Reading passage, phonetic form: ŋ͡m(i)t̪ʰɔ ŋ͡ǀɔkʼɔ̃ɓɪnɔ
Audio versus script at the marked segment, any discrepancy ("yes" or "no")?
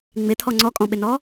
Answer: yes